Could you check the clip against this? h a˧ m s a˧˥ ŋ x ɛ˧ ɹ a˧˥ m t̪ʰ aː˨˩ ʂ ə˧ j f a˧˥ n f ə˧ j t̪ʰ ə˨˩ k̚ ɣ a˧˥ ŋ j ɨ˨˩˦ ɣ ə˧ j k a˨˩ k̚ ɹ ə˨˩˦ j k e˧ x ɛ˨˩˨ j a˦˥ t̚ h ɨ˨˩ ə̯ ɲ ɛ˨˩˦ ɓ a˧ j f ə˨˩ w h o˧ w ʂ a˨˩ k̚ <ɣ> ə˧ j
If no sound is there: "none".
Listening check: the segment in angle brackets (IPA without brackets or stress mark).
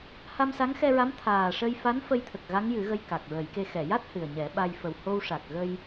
ɣ